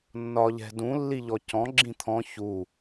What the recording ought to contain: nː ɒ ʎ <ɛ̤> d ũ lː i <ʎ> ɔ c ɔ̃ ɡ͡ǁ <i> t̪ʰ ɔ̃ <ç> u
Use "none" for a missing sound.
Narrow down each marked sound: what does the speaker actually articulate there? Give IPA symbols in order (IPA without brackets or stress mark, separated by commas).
ɛ̤, ʎ, ĩ, ç